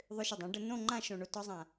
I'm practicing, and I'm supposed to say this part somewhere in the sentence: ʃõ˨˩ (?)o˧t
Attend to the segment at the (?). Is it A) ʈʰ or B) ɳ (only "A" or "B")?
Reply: B